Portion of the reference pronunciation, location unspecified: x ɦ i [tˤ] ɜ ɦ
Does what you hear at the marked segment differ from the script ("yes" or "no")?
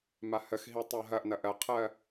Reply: no